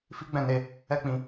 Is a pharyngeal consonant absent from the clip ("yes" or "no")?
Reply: yes